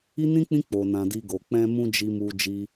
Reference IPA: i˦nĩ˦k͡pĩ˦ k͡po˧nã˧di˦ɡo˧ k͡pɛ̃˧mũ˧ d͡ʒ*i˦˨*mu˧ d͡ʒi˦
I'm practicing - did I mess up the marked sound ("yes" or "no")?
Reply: yes